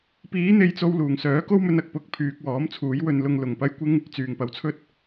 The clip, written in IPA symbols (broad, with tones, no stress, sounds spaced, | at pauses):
p iː˨˥ n̪ e˨˧ j t͡s o˧ w l uː˨˩ ŋ s œː˨˥ k o˥ w m ɵ˧ n ɐ˨ k̚ p ʊ˧ k̚ pʰ yː˧ k̚ w ɔː˨˥ m t͡sʰ uː˨˥ j w ɵ˧ n l ʊ˧ ŋ l ʊ˨ ŋ p ɐ˥ j kʷ ɪ˥ ŋ | t͡s yː˨˩ ŋ p ɐ˨ w t͡sʰ ɵ˥ t̚